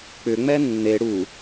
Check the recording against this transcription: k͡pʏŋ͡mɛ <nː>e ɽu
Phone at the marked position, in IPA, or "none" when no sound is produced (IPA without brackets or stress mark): nː